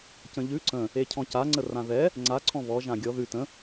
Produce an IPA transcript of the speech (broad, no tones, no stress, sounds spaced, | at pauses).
c ə̃ ʎ ʉ ǀ ə̃ | e cʰ ɔ̃ c a ŋ͡ǀ ə r ã ð ɛ | ŋ͡ǀ a ǀʰ ɔ̃ β ɔ ʒ ã ɡʲ ɔ ð ʉ t ə̃